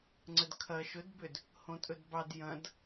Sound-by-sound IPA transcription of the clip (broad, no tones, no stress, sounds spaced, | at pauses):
ŋ͡ǀ ə d kʰ ɐ ʃ ɵ d b ʏ d | h õ tʼ ɵ d b ɑ d j ɐ̃ d